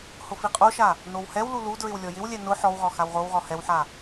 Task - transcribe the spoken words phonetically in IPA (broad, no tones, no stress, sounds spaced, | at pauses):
h ʊ f i qʼ o ʃ a | n o w h ɛ w l u l u d ɹ ɪ w lʲ ɔ j ɪ w lʲ ɛ n ʊ ħ ɔ w ʁ ɔ x a w ʁ o w ʁ ɔ h ɛ w ħ a